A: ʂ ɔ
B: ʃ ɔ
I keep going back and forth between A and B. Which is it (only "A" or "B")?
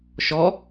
B